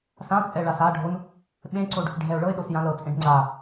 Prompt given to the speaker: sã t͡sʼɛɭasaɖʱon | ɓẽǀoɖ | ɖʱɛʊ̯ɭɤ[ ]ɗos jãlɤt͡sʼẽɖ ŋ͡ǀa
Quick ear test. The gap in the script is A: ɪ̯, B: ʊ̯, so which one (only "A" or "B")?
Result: A